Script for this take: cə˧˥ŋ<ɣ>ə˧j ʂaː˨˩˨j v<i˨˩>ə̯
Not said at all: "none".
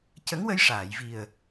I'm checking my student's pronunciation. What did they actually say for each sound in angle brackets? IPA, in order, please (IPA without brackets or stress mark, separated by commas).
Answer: w, i˨˩